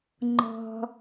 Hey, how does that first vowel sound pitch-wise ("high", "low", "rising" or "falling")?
low